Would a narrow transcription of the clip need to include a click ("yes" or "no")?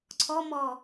yes